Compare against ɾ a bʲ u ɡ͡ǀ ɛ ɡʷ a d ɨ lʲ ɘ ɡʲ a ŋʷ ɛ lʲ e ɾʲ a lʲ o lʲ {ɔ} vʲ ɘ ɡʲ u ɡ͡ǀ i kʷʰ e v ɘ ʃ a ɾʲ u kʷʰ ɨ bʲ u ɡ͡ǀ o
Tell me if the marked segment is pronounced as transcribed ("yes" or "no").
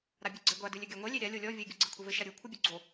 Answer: yes